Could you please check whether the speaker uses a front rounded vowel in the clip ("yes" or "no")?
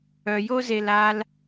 yes